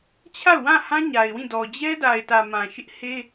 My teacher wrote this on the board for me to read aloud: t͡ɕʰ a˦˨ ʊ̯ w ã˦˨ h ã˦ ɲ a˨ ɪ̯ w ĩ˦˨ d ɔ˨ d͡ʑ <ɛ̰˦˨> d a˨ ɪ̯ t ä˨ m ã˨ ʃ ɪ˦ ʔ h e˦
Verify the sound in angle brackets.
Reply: incorrect: ɛ˦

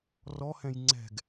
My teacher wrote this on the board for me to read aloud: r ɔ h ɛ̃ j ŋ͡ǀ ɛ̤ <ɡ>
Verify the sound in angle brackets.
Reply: correct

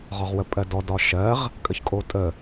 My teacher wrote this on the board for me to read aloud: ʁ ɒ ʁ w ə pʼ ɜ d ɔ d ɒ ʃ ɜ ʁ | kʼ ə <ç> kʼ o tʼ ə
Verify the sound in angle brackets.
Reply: correct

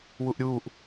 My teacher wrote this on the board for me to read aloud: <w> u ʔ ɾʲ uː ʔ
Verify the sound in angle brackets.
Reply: correct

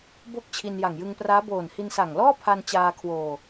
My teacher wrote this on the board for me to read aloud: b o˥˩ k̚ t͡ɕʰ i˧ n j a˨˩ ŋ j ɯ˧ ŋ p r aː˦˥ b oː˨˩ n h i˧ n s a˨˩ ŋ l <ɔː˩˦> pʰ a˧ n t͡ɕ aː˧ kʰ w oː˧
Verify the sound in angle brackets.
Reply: incorrect: ɔː˥˩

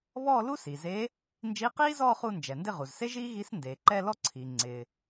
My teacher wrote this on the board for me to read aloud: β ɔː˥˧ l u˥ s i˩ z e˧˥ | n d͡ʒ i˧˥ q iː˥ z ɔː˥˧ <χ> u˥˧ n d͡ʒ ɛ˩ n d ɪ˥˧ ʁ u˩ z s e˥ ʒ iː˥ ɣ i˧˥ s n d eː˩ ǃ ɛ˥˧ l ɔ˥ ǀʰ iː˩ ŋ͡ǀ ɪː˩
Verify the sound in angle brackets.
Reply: correct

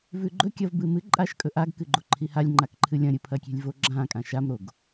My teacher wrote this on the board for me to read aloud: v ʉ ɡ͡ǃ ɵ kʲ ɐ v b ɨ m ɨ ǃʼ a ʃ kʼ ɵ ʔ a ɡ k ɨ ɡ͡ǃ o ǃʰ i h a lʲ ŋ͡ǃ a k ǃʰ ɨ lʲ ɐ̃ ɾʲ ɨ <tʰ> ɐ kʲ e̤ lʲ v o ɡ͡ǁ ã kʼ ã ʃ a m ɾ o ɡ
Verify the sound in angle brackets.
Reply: incorrect: pʰ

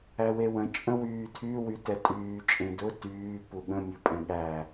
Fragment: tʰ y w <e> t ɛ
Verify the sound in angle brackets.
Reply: incorrect: y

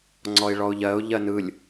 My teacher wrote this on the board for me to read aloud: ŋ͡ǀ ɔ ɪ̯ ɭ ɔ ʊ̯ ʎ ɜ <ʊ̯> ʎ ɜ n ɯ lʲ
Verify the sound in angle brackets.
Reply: correct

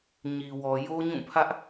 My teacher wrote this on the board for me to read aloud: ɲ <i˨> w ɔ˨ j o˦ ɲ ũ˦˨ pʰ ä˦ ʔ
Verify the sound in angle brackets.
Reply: correct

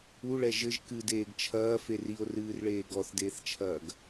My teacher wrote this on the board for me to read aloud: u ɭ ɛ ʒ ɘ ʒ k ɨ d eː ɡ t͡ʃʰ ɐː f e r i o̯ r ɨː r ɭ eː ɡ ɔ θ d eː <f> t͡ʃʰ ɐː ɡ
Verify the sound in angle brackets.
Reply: incorrect: θ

